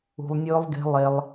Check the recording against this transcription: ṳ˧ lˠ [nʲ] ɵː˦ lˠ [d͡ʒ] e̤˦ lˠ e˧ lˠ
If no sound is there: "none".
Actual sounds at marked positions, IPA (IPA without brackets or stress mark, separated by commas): nʲ, ɡ